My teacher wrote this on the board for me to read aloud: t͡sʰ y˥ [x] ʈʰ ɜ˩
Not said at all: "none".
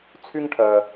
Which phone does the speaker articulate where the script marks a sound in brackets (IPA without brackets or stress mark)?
ŋ